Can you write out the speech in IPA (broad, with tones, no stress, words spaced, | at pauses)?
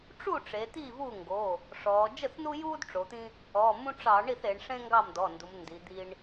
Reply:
ʈ͡ʂu˥˩ʈ͡ʂe˩˧ t̪iː˥˩vuː˥˩ŋɡo˩˧˩ | ʂɔː˩˧ d͡ʒə˥˩θnu˦juː˦d ʈ͡ʂo˩˧t̪ĩ˦ | ɔ˩˧˩mũ˦ʈ͡ʂɑ˧˩˧ ɳi˥˩θe˩˧ɳʂẽ˦ ŋɡɑ˥˩mdɔ˩˧˩ndu˩˧m ndi˩˧d̪i˦ɳ